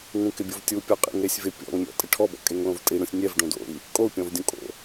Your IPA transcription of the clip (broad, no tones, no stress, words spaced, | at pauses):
ŋũkɪbʲovtʲu pʲɔqʼḭŋɾesʲvɪ pʲɔ̰ŋmʲɔ̰ tʼɪʈʰɔbɔ̰ kʼeŋlõvtʼiɽũsʲ nʲɛv ɖõdo̰i̯ | kʼou̯pʲɔ̃vdʲũ kʼo̰